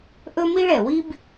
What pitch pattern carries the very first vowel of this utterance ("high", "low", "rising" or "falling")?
high